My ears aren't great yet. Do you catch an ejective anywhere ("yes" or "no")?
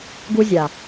no